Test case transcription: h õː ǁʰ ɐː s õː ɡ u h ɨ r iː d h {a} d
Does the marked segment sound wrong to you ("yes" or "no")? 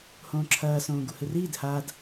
no